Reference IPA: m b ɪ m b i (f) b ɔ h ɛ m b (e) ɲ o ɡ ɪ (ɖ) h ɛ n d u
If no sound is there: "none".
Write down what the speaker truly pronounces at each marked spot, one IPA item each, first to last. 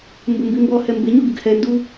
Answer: m, e, ɡ

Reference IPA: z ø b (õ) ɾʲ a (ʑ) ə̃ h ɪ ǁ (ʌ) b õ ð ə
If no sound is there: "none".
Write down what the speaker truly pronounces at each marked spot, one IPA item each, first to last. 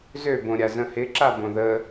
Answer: õ, z, a

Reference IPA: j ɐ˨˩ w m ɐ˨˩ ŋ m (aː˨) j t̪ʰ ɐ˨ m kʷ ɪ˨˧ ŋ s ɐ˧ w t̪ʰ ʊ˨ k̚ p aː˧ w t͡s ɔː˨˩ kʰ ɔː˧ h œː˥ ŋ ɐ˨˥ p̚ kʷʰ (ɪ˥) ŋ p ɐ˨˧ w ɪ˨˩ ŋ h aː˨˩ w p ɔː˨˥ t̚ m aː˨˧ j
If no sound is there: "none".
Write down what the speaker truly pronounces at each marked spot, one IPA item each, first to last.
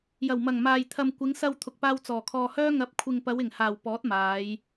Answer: aː˨, ɪ˨

